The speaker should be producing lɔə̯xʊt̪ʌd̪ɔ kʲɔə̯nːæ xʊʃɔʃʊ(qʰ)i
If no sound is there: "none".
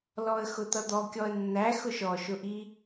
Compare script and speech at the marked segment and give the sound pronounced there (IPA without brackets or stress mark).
ʔ